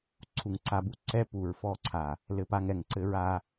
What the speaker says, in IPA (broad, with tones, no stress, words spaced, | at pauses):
ǀʰu˨ŋǀa˧bu˦ ǀɛ˦pu˨ɹfɔ˦˨ǀʰa˨ | lɘ˧pa˧ŋ ɛ˨ŋǀɘ˧ɹa˧